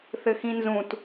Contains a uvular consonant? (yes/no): no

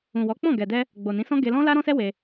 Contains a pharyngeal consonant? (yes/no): no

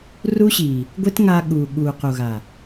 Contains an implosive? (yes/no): yes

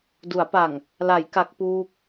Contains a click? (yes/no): no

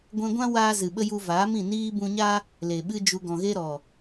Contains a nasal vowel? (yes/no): yes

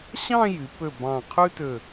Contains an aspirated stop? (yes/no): yes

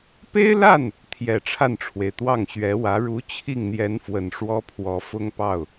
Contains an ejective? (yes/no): no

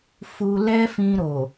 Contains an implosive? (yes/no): no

